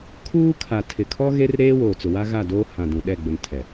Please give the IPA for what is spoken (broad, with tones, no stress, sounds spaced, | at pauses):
kʰ uː˦ kʰ a˨ tʰ ɪ˨ kʰ ɔ˦ ɣ e˦ r ɾ eː˦ w oː˨ t͡s ʊ˨ w a˦ ɣ a˦˨ d oː˦ h ã˨ d ũ˨ ɗ ɛ˦˨ ɡ͡b ʊ˨ n tʰ ɛ˨